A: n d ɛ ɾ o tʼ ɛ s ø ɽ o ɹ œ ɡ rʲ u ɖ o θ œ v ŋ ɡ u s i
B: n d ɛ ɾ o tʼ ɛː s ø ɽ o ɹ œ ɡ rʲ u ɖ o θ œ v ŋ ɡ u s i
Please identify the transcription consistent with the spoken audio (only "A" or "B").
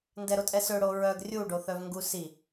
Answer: A